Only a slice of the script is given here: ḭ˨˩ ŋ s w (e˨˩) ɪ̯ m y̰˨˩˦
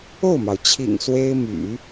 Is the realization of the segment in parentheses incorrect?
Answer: yes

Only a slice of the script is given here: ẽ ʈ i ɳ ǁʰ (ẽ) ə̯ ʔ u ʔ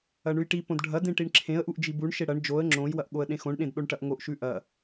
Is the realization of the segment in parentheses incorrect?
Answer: no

